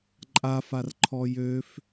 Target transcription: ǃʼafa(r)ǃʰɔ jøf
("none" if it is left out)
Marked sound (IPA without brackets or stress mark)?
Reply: r